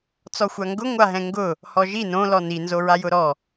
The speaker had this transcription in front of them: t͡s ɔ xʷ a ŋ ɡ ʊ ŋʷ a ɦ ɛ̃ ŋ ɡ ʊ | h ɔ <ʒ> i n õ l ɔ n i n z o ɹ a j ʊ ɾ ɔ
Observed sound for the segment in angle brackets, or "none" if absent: ʒ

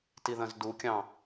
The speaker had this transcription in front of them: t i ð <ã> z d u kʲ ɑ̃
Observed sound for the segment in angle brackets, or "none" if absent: ɐ̃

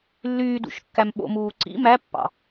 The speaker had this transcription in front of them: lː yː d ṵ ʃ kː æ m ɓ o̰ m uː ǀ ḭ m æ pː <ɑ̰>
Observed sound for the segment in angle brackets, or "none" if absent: ɑ̰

